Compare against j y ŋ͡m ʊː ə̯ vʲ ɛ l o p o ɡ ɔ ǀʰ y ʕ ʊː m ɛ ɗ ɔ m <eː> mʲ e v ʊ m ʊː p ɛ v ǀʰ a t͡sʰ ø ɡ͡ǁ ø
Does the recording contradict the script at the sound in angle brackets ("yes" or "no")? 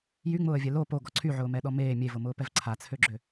no